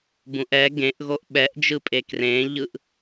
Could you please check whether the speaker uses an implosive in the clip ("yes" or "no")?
yes